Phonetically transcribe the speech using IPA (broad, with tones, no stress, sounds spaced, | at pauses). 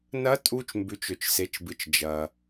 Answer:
n ɐ˧˥ tʼ u˧ t͡ʃ m b ʉ˩˧ t͡ʃ ɵ˩ t͡ʃ s e˩˧ t͡ʃ b ɨ˩ t͡ʃ d͡ʒ ɐ˩